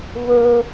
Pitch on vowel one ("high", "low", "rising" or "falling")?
high